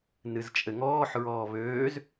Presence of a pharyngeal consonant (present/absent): present